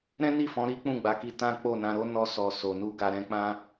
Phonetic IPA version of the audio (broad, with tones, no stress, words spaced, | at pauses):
ɾɛ̃˦ni˦˨fɔ̃˨˦ ɾi˦k͡pũ˦˨ɡ͡ba˨˦ki˧ tã˦k͡po˦˨nã˧ɾo˦ nɔ˧ sɔ˧ so˨nu˧ ɡa˨ ɾɛ̃˧ k͡pã˧